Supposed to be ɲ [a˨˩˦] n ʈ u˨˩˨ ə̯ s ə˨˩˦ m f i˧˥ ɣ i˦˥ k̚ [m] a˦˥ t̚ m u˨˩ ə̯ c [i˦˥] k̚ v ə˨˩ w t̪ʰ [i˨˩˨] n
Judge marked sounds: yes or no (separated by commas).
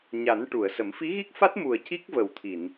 yes, no, yes, yes